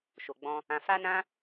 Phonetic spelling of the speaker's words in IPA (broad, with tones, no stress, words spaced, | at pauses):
ʃo˨ɡ͡bɔ̃˧ | ã˧ fa˦nã˦